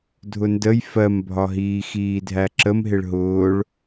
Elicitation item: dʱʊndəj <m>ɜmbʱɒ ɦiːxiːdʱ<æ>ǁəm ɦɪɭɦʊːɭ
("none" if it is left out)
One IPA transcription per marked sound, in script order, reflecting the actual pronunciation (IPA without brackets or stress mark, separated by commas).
f, æ